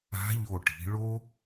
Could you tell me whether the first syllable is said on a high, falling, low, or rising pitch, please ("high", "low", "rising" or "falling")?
rising